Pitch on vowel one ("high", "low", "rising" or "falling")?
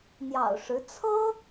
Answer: low